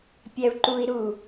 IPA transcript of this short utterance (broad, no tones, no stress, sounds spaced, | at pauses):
pʲ æ u̯ ǃ u i̯ ɾ u